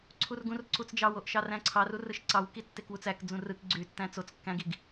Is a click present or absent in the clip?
present